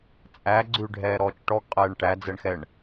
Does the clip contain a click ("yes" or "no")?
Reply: yes